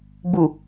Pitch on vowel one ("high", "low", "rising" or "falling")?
low